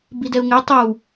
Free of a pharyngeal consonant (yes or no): yes